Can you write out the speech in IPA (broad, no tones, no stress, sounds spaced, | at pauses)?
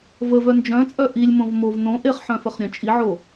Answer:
v ə v œ n d͡ʒ œ̃ t͡sʼ œ ʔ i lʲ m õ v m o v n õ ʔ e χ ħ œ̃ f ə χ ɾʲ œ̃ t͡ʃʼ i ʕ o